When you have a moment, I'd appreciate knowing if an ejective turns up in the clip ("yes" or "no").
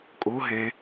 yes